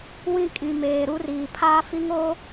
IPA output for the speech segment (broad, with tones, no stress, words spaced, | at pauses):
wĩ˦ kʼĩ˨meː˨ ɾu˦riː˨ pʰaː˦fi˦ŋoː˦